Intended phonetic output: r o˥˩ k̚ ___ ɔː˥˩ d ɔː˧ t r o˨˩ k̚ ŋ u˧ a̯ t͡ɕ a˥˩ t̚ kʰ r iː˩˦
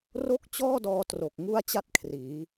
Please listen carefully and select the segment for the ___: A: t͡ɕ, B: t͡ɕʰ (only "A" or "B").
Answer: A